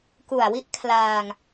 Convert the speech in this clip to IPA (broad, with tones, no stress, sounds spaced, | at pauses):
k u˨˩ a̯ w i˥˩ ʔ kʰ l aː˧ ŋ